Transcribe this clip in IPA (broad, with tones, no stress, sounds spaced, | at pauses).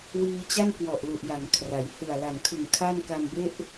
w iː˧ t͡ɕ a˥˩ n k w ɔ˨˩ ʔ l u˨˩ ʔ j a˩˦ ŋ kʰ r a˩˦ j h ɯ˨˩ a̯ l a˨˩ n kʰ ɯ˨˩ ŋ kʰ a˥˩ n k a˧ m b e˥˩ ʔ